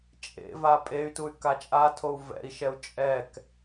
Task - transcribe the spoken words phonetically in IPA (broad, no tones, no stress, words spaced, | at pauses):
t͡ʃʼḛva pʼey̯tuy̯ kat͡ʃʼatʰou̯ vɛ̰i̯ʃɛu̯ t͡ʃʼɛk